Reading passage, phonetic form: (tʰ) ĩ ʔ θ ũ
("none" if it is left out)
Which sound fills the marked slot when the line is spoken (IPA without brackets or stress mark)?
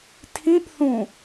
tʰ